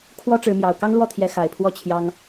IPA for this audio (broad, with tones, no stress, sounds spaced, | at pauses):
kʰ w ɔ˦ ʈ͡ʂ ɻ̩˨˦ m j ɑ˨˩ ʊ̯ k ɑ˦ ŋ l w ɔ˥˨ t̪ʰ j ɛ˨˦ x a˨˩ ɪ̯ pʰ w ɔ˦ t͡ɕʰ j ɑ˦ ŋ